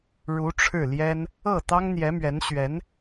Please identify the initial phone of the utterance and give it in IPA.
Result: ɻ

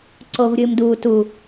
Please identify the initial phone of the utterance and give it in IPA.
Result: ǀ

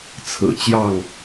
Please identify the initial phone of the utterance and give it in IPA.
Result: t͡sʰ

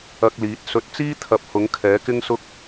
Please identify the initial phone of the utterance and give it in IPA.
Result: ɐ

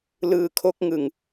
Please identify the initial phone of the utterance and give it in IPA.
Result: l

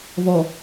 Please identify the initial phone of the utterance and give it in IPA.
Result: v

